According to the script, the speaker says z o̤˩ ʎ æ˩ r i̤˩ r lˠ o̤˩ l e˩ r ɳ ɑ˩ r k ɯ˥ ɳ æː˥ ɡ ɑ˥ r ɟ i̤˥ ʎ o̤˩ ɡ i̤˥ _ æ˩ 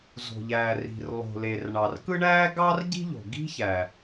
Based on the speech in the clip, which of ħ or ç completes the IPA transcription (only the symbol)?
ç